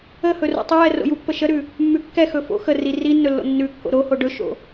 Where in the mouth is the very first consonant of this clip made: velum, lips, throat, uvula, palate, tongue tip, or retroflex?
throat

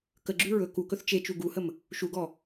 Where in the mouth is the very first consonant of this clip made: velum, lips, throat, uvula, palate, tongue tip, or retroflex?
velum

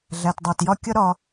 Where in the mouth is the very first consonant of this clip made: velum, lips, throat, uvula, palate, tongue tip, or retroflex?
tongue tip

